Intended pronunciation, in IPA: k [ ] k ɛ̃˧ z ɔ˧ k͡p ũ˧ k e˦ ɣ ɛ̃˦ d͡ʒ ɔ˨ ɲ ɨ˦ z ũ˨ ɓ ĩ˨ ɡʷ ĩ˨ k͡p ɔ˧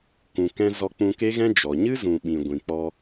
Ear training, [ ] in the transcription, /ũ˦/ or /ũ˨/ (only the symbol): ũ˨